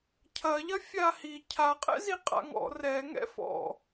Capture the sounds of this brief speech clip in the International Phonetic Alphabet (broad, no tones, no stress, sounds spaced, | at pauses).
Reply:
cʰ ɐ ʎ ɐ fʲ a h i cʰ a qʼ ɛ̰ z i qʼ a̰ ŋ ɔ̰ r ɛ ŋ ɛ̰ f ɔ̰